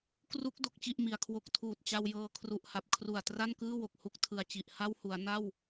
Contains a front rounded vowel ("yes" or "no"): no